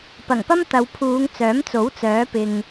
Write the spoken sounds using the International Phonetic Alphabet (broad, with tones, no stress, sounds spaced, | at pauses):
p ɐ˨˩ ŋ p ɐ˥ m t̪ ɐ˨˧ w pʰ uː˨˧ ŋ t͡s œː˨˥ m t͡s o˨˥ w t͡s œː˨˥ p ɪ˨ ŋ